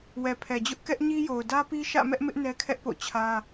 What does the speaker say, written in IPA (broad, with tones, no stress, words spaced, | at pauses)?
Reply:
wɛ˨pʰɛ˨d͡ʑʊ˦ʔ kɛ˦ʔɲi˦jo˨ʊ̯ dä˦pi˦ ʃä̰˦˨mɛ˦ʔmɪ˦ʔ nɛ˦kʰɛ˦ʔpo̰˦˨ t͡ɕʰä˦